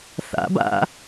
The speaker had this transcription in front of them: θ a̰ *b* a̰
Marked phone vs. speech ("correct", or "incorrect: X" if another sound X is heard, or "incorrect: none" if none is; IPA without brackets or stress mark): correct